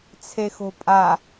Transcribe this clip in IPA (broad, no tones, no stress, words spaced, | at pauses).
t͡sʰexo̤pʼa